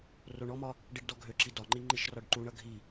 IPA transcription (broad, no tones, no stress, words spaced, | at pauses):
roɳɔmɒ | ɖiɖdɔɡʱøǁi dɒŋ͡ǃi ŋ͡ǃiʃrɒɖǃuɳʌ ɡʱi